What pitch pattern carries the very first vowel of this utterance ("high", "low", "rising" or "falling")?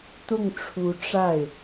falling